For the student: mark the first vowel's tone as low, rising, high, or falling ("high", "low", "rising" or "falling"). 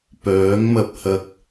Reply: rising